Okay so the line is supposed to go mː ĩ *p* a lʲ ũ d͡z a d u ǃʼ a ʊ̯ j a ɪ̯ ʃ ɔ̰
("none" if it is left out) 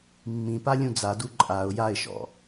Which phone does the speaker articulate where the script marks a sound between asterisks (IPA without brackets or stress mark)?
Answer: p